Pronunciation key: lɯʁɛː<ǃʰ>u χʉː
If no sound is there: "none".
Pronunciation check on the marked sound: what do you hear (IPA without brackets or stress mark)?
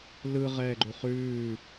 ɡ͡ǃ